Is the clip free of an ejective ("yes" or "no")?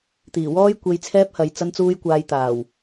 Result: yes